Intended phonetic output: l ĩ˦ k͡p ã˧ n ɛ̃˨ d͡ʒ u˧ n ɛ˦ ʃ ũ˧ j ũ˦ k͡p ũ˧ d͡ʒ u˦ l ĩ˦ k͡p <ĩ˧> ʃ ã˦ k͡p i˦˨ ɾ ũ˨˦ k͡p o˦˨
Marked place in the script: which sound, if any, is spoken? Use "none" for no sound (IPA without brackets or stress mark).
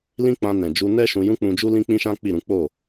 ĩ˦